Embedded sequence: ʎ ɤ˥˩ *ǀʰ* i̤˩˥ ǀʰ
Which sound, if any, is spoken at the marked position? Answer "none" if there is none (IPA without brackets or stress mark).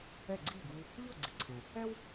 ɡ͡ǀ